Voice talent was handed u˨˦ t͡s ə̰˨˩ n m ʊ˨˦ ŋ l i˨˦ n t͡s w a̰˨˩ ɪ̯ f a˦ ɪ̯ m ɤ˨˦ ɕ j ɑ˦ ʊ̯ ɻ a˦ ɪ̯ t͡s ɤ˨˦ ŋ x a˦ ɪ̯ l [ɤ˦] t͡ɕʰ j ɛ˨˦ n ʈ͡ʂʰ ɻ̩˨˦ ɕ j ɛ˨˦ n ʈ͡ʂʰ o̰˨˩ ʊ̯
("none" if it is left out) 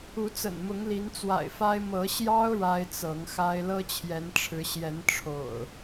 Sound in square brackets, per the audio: ɤ˦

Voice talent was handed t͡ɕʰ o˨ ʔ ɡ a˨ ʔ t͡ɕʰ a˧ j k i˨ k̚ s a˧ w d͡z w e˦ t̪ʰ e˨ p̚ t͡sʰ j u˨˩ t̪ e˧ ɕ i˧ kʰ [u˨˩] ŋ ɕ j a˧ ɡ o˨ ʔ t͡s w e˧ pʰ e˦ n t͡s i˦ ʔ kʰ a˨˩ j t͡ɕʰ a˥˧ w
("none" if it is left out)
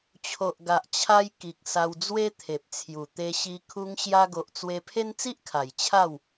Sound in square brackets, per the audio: u˧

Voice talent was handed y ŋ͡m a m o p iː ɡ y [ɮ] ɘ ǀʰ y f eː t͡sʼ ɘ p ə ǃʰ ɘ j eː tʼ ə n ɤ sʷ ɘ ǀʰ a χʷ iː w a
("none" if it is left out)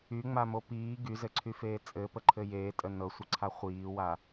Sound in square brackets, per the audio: z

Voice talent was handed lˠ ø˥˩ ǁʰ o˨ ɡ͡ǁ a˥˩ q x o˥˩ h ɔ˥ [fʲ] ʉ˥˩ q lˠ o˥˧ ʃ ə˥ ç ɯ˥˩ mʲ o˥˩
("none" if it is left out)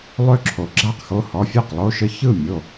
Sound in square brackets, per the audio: fʲ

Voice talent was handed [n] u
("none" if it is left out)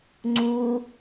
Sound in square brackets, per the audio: ŋ͡ǀ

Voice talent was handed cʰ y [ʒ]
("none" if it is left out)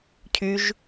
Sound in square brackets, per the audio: ʒ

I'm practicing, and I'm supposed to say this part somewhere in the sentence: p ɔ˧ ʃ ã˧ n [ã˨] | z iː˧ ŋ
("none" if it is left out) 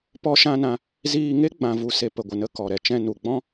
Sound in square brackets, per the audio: ã˧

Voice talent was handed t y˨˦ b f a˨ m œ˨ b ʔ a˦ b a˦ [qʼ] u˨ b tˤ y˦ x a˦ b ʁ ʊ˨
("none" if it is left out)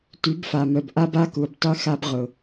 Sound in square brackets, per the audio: k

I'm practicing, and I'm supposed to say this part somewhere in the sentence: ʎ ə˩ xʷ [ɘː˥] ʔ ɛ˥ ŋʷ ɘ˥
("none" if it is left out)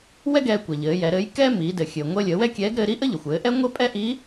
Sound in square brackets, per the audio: ɘː˩˧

